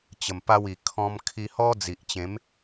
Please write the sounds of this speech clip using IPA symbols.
t͡ɕə˨˩mpa˧wi˨˩ kʰɔ̃˧mkʰi˧hɔ˦ d͡zi˨ʔt͡ɕẽ˨˦m

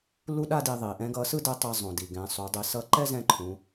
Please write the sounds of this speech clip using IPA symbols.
lu˥ɗa˥ di˧ðˤi˩˧ʔɛ̃˧˥ ɡʌ˧˥ sɯ˥dɛ˧˥tˤɛ˧ zˤõ˩di˩ ɡɛ̃˩˧sˤu˩˧dˤi˩˧ sʌ˧˥ǃɛ˥ zɛ̃˥ǃʰũ˩˧

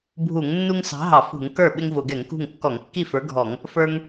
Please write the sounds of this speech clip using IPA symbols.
bʱu˧˩˧ŋnːu˦ŋ sɑ̤˨˥ɦɑ˧˩˧fṳ˧˩˧ŋ kə˞˥˩ ɓɪ˦ŋvʊ˧˩˧ɡɛ˧˩˧ŋkṳ˥˩ŋ kːɔ˧˩˧ŋkːi˥˩fə˞˨˥ɡʱɔ˧˩˧ŋ | fə˞˦ŋ

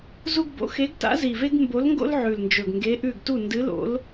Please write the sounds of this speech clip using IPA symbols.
zu˥ɡbo̰˧˥ xe˧˥ɡta̰˧˥zi˨˩ve˥ɡ mbo˧˥lŋɡo̰˥l ʕʉ˨˩lnd͡ʒɵ˨˩ɡ ŋɡe˧˥ʔʉ˥˨ɡ tu˥˨ndɨ˧˥ lo̰˧˥l

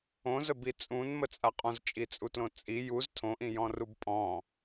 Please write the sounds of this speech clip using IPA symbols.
õzəbi t͡sʼũnmət͡sʼa qʼɔ̃zt͡ʃʼit͡sʼutlõ t͡sʼi juz tʰõʔĩjɔ̃rub pʼɔ̃

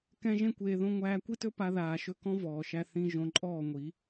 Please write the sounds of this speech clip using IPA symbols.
kɛ̃˧ ʒẽ˦kʷeː˧ ðõ˧ ŋʷæː˧kʷi˦tɵ˦ pa˧ðaː˨ʃɵ˧ kɔ̃˦vɔː˨ʃæ˧ θĩ˧ ʒõ˧ǃʼɔː˦˨ŋʷi˨˦

